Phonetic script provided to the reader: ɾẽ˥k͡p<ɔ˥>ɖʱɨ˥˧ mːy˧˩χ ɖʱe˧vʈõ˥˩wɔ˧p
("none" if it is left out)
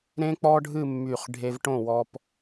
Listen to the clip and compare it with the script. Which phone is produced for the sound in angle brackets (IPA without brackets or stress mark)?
ɔ˥